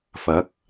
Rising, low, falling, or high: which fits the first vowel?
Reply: rising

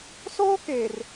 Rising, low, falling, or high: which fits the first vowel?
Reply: high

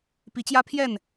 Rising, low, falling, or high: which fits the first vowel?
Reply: rising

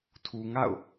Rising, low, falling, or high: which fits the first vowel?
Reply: low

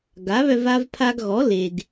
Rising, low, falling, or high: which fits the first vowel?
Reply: rising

